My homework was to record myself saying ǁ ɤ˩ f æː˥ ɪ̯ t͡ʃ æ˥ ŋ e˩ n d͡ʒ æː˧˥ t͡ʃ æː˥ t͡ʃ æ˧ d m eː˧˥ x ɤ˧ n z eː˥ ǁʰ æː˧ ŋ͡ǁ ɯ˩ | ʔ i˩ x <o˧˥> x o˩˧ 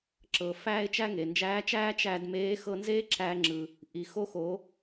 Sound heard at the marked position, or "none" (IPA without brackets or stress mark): o˧˥